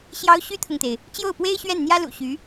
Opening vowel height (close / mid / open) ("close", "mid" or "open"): open